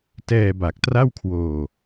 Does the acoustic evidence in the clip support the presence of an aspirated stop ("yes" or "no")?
yes